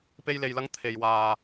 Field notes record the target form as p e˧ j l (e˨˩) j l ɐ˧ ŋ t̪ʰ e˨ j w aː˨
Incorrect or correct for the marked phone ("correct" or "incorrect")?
incorrect